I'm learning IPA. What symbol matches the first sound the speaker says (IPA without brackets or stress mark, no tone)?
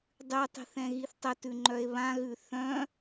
dˤ